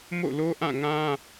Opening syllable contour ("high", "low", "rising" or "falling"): falling